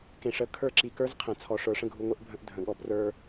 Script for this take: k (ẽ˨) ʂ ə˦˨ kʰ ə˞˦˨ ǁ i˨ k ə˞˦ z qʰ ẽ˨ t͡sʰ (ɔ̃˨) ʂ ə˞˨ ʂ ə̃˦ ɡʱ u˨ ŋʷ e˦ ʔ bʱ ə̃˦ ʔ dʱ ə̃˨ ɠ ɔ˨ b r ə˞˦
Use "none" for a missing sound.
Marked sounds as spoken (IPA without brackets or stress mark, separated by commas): ẽ˨, ɔ˨